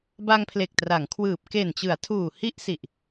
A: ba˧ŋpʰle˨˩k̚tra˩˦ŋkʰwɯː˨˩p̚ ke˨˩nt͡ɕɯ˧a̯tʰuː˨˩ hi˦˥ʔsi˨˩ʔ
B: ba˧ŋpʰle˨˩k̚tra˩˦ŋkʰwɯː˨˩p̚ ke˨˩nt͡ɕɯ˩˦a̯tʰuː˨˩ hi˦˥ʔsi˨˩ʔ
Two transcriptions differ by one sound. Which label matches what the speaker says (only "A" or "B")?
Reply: B